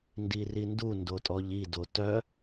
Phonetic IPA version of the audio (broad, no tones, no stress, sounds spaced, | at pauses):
n d i r i n d u n d o tʼ ɔ ʎ i d o t œ